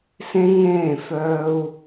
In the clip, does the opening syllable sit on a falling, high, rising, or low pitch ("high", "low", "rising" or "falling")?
high